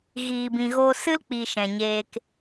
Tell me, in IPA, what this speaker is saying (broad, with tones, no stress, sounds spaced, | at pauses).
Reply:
ɣ iː˨ b ĩ˨ ɣ o˧ s ɨ˦ l k͡p i˨ ʃ ɛ̃˨ ɲ eː˧ k